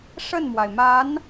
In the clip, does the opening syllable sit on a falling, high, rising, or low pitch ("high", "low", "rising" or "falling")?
falling